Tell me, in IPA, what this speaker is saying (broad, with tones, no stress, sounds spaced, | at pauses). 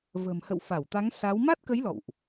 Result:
v ə̤ː˨˩ m h ə̰˧˨ w f a˧˩ w t̪ a˨˦ ŋ s a˨˦ w m a˦˥ t̚ k ə˨˦ j l ɔ̰˧˨ w ʔ